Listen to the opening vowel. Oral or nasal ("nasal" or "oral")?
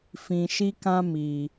nasal